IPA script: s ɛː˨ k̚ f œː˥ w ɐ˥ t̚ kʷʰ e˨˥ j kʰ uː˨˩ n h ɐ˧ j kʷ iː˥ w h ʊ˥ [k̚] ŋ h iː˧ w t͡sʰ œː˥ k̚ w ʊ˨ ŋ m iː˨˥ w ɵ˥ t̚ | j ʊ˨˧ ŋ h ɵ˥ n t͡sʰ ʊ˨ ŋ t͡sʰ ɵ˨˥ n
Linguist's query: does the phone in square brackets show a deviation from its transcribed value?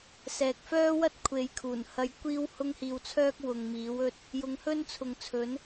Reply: yes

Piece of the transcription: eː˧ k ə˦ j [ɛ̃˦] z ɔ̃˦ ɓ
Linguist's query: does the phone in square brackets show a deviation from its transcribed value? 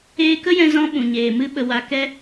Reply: yes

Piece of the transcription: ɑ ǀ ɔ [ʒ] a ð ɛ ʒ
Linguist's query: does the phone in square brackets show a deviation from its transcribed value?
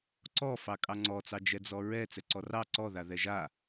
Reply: yes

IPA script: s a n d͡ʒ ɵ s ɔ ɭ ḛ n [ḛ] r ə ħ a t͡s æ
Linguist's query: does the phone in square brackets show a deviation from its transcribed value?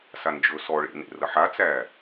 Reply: no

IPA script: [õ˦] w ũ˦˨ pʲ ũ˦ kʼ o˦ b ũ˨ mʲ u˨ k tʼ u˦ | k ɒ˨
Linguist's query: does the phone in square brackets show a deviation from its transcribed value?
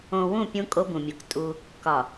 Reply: yes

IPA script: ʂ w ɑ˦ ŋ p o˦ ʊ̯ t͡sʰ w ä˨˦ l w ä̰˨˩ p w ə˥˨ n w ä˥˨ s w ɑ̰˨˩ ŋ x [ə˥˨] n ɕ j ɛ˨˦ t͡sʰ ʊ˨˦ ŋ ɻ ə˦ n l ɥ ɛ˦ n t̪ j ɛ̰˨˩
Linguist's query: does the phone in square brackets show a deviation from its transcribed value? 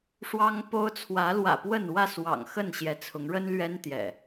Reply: no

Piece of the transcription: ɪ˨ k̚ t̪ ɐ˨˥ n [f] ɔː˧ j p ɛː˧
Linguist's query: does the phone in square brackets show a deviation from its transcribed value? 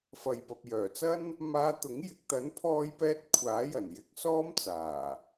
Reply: yes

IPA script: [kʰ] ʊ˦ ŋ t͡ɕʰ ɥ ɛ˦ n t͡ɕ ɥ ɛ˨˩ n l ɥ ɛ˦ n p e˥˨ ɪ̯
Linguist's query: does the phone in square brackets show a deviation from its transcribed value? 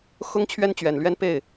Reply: yes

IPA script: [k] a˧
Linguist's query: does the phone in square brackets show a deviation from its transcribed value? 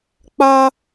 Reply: yes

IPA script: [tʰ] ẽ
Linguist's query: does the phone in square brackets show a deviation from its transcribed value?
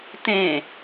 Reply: yes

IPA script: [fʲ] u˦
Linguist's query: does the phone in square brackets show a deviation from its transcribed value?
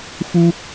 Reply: yes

